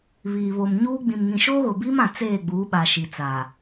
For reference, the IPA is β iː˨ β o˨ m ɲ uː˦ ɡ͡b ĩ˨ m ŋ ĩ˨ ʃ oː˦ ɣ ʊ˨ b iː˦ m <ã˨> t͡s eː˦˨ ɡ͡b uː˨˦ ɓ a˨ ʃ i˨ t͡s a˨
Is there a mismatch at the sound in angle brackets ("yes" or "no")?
no